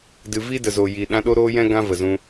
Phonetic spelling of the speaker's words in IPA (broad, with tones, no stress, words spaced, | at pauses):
dɨ˨vi˦ də˨zo˨ji˨ ɗã˧ɗo˦ɾoː˦jɛ̃˦ ɡã˦və˨zũ˧